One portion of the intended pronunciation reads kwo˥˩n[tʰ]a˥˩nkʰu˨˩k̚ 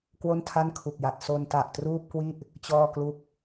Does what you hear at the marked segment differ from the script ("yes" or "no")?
no